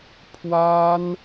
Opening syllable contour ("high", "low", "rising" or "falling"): high